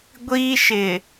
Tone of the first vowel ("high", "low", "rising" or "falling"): high